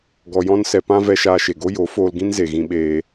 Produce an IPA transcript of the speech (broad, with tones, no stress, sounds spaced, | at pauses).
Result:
ɡ ɔ˧ j ɔ̃˦ n s ɛ˧ p ã˦ v ɛ˦ ʃ aː˧ ʃ e˨ ɡ o˦ j o˨˦ f oː˧ l ɡ ĩ˦ n z e˨ ɣ ĩ˧ ɓ eː˧